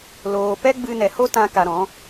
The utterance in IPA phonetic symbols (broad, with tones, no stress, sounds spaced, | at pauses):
l oː˧ p ɛ˦ ɡ͡b ɨ˧ n ɛ˨ h o˦ t ã˦ k a˧ ɾ ɔ̃˨˦